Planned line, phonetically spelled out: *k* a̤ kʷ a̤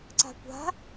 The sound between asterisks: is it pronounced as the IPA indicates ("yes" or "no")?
no